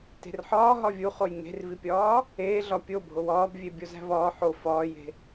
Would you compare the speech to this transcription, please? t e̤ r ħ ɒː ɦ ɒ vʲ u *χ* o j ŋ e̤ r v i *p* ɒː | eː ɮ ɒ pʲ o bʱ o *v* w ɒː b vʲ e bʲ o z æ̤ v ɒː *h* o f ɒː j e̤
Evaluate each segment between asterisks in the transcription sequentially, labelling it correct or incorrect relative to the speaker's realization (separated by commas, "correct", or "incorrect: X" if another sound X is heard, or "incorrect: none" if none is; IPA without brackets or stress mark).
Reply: correct, incorrect: pʲ, incorrect: none, incorrect: ħ